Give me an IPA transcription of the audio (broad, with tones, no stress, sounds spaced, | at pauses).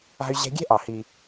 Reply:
a̤˥ y̯ ʑ ɛ̤˥ ɡʲ ɛ̤˥ ʔ ɑ˧˩ h i˧